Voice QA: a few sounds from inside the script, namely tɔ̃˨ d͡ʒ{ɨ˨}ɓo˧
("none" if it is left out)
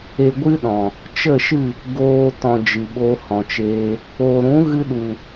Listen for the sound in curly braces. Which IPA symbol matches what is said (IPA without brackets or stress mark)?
ɨ˨